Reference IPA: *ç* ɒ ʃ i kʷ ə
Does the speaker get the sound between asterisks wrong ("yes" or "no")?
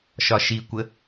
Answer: yes